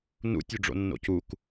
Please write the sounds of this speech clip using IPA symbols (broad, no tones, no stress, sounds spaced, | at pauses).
n ṵ tʲ ø ɖ͡ʐ o̰ nː o̰ c u k